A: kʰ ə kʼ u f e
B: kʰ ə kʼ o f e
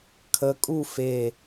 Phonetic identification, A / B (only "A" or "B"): A